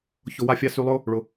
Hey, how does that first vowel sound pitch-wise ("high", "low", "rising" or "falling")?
low